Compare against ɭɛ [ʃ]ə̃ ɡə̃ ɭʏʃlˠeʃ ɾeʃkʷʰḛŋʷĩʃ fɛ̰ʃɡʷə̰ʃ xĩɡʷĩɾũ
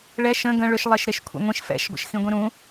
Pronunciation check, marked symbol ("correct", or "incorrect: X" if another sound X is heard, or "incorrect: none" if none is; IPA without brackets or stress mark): correct